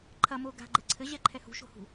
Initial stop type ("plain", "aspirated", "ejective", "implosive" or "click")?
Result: click